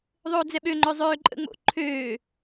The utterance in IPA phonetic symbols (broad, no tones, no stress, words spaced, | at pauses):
ðˤoːd͡zɛɓøŋ͡ǃø zˤøːǃʼə̰ ŋ͡mo̰ ǃʰøː